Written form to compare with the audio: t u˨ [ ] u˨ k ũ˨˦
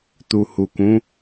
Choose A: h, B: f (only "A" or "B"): A